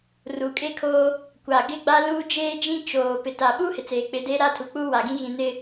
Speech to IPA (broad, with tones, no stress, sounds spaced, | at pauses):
r uː˨ kʼ eː˦ kʰ oː˦ | kʷ a˨ ɡ ɪ˦ ɡ͡b a˦ l uː˦ d͡ʒ eː˦ d͡ʒ ĩ˦ t͡ʃ oː˨ p ɪ˨ t a˨ ɓ uː˦ h ɪ˨ t͡s eː˨ k͡p ɪ˨˦ d eː˦ ɾ a˦˨ tʰ u˨ k͡p uː˦ w a˨ ɡ ĩ˦ ɣ ĩ˨ n ɪ˨